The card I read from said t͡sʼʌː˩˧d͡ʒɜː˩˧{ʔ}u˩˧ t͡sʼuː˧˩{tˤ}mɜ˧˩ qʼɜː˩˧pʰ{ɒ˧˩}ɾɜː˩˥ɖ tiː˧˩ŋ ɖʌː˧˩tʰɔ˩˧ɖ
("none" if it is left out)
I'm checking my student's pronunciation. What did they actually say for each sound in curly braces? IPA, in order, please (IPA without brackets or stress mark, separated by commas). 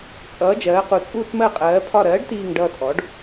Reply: q, t͡s, ɒ˧˩